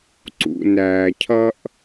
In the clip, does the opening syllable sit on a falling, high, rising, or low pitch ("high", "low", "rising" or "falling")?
low